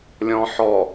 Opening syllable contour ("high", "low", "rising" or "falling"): low